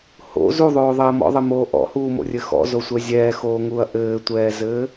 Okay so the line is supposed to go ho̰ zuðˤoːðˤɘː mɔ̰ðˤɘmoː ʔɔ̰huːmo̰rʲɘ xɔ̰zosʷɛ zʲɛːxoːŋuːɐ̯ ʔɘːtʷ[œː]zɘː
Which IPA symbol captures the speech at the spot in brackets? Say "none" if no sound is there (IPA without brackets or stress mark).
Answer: ɛː